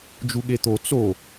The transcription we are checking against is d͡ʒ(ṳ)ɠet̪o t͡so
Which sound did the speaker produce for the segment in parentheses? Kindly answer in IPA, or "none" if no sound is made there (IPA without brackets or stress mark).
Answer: u